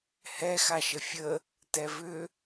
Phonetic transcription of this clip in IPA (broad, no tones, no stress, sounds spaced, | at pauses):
h ɛ x a ʃ ə fʲ ə | t ɛ v ʏ